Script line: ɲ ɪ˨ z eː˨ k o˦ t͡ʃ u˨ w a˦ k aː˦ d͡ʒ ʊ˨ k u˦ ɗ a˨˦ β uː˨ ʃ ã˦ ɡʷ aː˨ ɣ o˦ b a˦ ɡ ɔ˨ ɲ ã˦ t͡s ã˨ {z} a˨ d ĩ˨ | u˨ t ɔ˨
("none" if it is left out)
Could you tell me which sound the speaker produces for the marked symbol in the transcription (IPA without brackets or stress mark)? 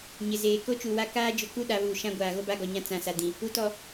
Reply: s